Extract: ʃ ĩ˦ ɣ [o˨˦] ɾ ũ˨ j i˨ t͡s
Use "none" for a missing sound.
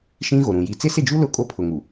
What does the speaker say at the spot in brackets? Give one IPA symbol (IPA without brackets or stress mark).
o˨